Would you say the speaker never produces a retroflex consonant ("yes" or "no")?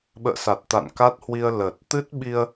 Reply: yes